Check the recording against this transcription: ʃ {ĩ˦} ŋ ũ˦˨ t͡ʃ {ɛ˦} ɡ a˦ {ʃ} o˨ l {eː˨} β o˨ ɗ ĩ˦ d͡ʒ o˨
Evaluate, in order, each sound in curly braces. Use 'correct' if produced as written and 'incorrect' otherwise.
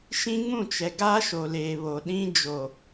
correct, incorrect: ɛ˨, correct, correct

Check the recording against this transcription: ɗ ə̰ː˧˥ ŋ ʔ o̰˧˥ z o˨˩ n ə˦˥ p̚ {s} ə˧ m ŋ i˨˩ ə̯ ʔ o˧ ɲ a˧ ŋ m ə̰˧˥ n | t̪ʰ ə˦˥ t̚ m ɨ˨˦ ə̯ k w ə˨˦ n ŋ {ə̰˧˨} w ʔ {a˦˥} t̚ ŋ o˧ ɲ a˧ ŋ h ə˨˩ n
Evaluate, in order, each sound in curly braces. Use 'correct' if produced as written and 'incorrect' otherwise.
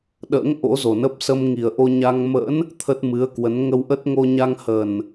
correct, incorrect: ə˧, incorrect: ə˦˥

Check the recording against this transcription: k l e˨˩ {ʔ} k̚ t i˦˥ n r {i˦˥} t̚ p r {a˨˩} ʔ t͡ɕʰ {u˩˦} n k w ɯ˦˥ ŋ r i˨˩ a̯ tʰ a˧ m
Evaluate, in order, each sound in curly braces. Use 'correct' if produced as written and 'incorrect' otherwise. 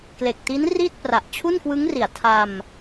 incorrect: none, incorrect: i˥˩, correct, incorrect: u˥˩

